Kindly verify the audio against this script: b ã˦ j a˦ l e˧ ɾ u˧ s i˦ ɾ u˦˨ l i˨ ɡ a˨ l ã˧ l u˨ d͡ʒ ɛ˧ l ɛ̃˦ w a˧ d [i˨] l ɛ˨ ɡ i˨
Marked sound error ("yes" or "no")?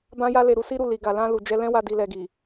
no